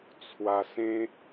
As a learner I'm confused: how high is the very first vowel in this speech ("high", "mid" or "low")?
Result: low